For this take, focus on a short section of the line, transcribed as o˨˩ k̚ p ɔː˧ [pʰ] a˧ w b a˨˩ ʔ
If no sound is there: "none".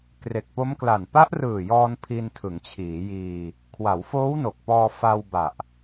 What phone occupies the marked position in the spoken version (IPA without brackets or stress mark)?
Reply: f